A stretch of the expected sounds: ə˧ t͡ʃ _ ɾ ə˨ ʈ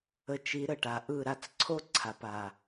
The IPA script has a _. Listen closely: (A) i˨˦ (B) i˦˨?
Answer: A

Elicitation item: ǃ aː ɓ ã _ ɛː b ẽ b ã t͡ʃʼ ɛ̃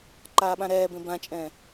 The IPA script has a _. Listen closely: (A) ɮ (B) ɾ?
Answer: B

